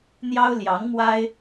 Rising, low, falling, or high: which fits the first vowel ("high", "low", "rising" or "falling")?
high